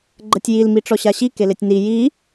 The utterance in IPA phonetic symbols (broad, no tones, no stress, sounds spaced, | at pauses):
ɡ͡ǃ ə tʲ j i l m i ʈ͡ʂ ɔ ɕ a ɕ i k e l e tʲ n i j i